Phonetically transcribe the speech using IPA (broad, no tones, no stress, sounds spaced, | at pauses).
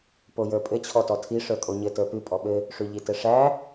p o j ə˞ pʼ ɘ t͡ɕʰ ɔ t ɔ tʰ i ʂ ə˞ kʼ o ɲ ɘ t ə˞ p ʉ pʼ ɔ ɓ ɘ | ʂ ʉ ʎ i t ɘ ʂ æ